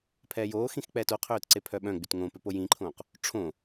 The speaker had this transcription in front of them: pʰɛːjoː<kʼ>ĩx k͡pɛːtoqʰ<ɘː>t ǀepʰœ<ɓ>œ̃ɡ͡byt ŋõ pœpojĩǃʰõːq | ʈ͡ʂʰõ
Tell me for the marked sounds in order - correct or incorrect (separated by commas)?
incorrect, incorrect, correct